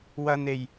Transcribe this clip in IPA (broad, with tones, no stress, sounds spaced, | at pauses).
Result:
w ɐ˨ n e˨˩ j